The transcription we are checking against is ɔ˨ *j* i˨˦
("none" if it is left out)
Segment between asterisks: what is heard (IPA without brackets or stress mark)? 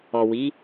w